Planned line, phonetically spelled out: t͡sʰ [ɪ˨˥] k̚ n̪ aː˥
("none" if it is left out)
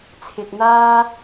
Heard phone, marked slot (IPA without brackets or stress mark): ɪ˧